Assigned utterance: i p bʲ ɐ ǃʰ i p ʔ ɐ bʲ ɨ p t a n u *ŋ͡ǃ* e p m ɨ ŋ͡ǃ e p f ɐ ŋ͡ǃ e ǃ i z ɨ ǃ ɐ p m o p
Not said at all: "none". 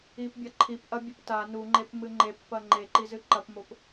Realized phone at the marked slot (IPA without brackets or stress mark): ŋ͡ǃ